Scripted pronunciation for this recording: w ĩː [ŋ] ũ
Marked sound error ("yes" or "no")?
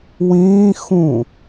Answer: yes